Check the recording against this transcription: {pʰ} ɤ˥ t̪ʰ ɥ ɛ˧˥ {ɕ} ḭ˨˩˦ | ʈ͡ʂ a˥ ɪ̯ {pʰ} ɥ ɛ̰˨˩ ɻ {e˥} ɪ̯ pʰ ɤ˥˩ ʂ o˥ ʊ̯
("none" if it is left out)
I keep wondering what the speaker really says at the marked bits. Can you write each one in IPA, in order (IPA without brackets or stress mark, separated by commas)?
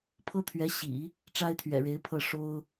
pʰ, ɕ, t̪ʰ, e˧˥